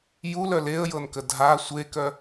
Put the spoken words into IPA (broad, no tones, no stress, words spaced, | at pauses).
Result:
julœ leə̯jɤnkə dʱa sʷekœ